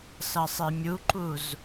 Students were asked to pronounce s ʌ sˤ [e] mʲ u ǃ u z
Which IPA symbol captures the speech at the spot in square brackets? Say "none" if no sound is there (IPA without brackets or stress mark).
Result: e